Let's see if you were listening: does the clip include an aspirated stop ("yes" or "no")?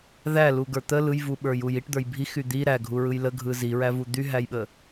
no